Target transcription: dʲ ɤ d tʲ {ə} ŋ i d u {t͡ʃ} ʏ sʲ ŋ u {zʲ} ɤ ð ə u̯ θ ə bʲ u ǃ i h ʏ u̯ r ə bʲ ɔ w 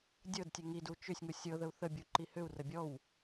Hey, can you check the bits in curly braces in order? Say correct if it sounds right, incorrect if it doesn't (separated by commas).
correct, correct, incorrect